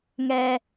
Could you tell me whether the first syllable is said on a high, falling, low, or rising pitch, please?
high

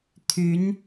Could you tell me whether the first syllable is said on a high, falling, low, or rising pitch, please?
rising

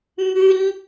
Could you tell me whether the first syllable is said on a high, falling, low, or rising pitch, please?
high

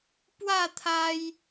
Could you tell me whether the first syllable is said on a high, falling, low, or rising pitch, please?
falling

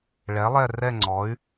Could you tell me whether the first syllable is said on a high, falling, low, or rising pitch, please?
rising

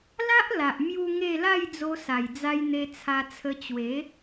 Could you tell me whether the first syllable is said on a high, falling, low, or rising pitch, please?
high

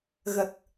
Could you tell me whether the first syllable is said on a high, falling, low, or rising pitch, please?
low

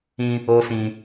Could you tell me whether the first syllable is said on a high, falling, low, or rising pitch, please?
high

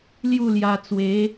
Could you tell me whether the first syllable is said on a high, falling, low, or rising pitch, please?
falling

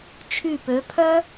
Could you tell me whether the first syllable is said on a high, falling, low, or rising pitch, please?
falling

